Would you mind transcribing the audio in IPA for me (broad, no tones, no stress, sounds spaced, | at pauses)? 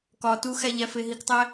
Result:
k ɒ t u x æ ʎ æ f e ɦ i k tˤ æ